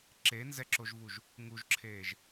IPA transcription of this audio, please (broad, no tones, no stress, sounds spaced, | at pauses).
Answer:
ǁ e n z ɛ ǁ o ʒ v u ʒ | ŋ u ʒ ǁʰ eː ʒ